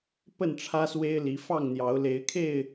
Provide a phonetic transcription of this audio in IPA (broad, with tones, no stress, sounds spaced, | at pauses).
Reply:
p ə˥˨ n ʈ͡ʂʰ ä˦ s w e˦ ɪ̯ l i˨˦ f ɑ˥˨ ŋ n̪ j ɑ˨˦ ʊ̯ l e˨˦ ɪ̯ kʰ e˥˨ ɪ̯